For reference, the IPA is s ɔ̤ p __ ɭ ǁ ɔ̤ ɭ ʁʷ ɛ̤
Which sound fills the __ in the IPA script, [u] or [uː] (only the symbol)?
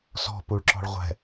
u